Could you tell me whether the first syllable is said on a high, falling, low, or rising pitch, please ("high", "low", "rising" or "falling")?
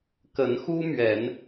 rising